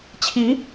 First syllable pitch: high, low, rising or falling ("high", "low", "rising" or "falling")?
rising